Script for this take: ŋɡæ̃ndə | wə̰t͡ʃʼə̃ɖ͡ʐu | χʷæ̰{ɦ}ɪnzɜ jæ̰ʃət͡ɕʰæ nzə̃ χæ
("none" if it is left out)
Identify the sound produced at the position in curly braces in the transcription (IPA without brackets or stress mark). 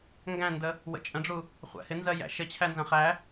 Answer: h